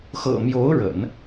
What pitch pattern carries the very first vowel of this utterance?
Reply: low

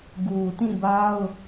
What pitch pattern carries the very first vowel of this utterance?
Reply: low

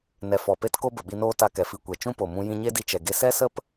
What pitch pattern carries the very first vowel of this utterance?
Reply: low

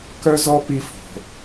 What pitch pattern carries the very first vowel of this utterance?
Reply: high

